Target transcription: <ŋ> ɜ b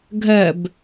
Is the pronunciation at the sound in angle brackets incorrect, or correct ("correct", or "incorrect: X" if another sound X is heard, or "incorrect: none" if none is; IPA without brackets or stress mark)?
incorrect: ɡʱ